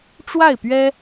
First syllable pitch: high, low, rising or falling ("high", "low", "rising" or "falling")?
falling